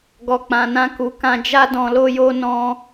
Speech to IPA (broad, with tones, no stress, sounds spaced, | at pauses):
ɡ ɔ˧ k͡p ã˧ n ã˦ k u˧ k ã˧ d͡ʒ a˦ d ɔ̃˧ l o˦ j o˦ n ɔ̃˦